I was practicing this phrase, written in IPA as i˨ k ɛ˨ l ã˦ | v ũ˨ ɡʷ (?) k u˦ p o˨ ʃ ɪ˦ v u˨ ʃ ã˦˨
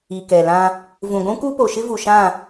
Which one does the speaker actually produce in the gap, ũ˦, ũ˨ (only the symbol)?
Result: ũ˦